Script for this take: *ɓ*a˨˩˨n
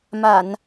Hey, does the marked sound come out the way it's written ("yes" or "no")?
no